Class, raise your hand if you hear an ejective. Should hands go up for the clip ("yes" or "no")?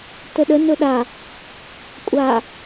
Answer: yes